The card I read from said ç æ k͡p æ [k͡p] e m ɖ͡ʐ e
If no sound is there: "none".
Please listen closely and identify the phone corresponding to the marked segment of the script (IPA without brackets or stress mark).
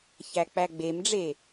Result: ɡ͡b